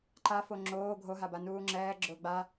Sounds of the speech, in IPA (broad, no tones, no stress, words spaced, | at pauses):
ǃa foŋ͡ǁoː ɡʱoɦaba nuːŋ͡ǁɛː ɡ͡ǁʊːɡ͡ba